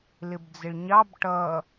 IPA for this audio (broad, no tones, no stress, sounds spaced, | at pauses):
l ɪ b d͡z ɪ ɭ ɲ ɑ b ʈ ʌ